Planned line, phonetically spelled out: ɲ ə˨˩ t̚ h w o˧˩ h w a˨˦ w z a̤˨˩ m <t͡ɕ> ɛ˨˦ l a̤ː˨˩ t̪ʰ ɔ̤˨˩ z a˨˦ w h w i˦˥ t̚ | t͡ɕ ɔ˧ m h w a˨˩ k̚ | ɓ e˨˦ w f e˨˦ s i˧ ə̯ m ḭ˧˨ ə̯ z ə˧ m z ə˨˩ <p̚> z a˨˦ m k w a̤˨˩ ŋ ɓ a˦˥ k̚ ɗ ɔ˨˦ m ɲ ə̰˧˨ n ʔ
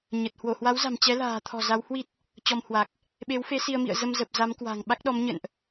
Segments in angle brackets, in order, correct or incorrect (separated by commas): correct, correct